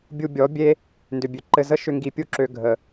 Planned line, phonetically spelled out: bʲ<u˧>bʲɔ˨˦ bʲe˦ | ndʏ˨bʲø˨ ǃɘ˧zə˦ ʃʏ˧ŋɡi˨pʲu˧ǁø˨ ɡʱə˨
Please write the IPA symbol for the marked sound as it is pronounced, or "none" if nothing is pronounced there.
u˧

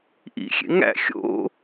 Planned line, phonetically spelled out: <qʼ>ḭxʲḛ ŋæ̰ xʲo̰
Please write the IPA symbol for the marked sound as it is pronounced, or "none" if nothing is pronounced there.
ʔ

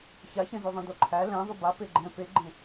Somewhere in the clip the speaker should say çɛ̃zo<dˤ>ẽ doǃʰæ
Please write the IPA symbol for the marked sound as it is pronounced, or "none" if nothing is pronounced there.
ðˤ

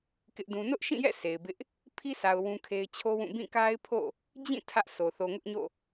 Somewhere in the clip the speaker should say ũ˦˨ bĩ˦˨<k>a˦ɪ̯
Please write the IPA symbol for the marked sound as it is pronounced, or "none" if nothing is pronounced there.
k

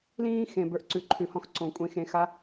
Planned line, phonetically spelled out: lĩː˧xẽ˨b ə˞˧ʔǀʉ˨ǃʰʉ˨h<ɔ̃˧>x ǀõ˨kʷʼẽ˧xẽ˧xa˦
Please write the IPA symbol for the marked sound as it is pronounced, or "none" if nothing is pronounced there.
ɔ̃˧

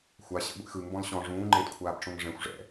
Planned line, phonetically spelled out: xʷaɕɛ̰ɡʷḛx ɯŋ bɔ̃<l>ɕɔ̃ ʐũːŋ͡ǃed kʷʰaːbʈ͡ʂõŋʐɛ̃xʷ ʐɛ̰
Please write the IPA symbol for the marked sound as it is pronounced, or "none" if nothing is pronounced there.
l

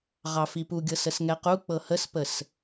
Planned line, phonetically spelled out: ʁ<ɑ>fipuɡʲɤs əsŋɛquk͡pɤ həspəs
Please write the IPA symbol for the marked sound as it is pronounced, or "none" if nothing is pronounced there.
ɑ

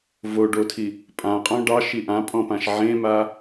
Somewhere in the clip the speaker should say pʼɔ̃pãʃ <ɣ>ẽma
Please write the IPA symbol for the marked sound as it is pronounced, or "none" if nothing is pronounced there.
ʕ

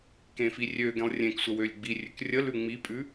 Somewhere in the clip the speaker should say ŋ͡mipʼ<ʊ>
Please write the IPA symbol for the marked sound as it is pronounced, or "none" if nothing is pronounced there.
ʉ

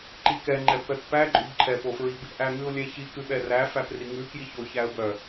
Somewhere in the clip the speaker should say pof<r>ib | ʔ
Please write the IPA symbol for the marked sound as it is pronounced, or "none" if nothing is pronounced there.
ɹ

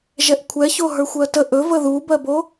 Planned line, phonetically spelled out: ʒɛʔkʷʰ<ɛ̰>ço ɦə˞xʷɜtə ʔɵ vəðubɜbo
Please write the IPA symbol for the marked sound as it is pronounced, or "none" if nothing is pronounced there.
ɛ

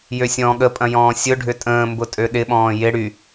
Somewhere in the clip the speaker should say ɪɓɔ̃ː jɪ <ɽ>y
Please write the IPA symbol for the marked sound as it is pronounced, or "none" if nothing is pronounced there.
ɽ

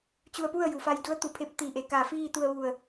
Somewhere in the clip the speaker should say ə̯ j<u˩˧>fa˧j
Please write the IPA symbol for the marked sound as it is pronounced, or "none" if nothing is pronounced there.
u˩˧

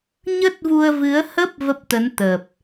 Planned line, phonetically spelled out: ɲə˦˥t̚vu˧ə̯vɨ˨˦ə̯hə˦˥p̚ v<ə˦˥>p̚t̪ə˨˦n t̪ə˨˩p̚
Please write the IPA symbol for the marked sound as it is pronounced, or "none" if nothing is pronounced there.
ə˦˥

